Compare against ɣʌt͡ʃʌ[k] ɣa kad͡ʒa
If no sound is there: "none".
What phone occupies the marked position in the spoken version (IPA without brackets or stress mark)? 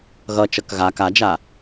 k